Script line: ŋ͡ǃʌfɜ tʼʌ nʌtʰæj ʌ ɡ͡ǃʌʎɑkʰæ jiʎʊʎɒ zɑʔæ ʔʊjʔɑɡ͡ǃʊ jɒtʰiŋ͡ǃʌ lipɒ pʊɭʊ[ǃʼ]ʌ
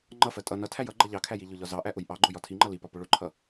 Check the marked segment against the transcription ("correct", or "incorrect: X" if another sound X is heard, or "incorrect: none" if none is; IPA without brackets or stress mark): incorrect: ǃʰ